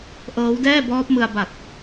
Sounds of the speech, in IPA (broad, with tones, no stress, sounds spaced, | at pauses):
ʔ ɤː˦˥ w d ɛː˥˩ b ɔː˦˥ p̚ m ɯ˧ a̯ b a˨˩ t̚